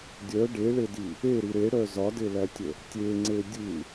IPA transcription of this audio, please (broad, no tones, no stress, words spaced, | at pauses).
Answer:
dʲœ ɖeɭedi | eɾi ɾeɽœ zɒdelætʲə | tʲeŋ͡ǀe dʲɯ